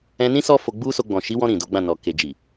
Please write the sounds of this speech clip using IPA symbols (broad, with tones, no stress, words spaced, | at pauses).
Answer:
ɛ̃˧nĩ˦ sɔ˦fo˧ɡ͡bu˦so˧ ɡ͡bɔ̃˨ʃi˨˦wɔ̃˧ ɾĩ˨do˨˦ɡ͡bã˦˨ nɔ˨ ke˨d͡ʒi˨